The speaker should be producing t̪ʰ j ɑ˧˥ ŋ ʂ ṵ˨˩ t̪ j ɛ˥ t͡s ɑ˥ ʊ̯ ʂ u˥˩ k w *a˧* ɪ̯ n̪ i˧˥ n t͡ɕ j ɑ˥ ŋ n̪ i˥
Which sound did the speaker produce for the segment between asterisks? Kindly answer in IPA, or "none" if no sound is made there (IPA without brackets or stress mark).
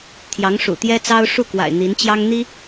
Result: a̰˨˩